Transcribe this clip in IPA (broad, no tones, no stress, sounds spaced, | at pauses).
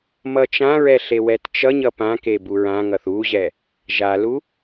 m ʌ t͡ʃ ã ɹ ɛ ɬ e w ɛ t t͡ʃ ʌ ɲ ʌ p ã k e b u ɹ ã ŋ ʌ θ u ʑ ɛ | ʒ a l u